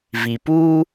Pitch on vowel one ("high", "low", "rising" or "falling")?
low